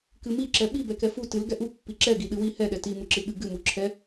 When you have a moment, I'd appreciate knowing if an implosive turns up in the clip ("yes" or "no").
yes